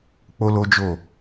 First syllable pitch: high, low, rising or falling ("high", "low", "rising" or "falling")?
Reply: high